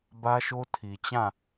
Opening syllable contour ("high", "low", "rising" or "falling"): high